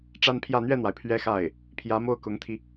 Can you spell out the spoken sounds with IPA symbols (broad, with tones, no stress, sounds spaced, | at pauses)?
ʈ͡ʂ a˥ n pʰ j ä˥˧ n̪ ɥ ɛ˥˩ n̪ w a˩ ɪ̯ pʰ ɥ ɛ˥ x a˥˩ ɪ̯ | pʰ j ä˧˥ m o˥˩ ʊ̯ k ʊ˧˥ ŋ t̪ʰ i˧